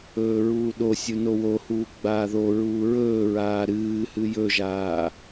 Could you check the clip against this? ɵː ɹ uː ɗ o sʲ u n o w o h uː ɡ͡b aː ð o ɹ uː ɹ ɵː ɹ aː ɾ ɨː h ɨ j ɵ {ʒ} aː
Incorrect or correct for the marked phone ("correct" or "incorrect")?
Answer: correct